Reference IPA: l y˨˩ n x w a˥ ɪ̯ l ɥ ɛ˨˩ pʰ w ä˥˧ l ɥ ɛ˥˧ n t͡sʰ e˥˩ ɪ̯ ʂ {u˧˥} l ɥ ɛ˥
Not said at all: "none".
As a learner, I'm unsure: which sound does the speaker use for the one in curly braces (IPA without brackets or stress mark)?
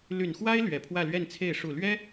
u˨˩